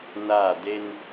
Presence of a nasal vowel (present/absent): absent